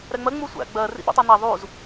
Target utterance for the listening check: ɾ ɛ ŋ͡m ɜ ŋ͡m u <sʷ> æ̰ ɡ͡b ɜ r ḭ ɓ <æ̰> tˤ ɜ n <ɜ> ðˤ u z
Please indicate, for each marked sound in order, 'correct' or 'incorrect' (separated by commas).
correct, correct, incorrect